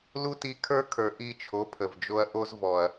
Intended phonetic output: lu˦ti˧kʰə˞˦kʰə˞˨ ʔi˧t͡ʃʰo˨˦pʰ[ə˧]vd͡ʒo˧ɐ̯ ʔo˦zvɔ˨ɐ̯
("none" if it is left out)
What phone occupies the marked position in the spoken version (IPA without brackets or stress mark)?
ə˨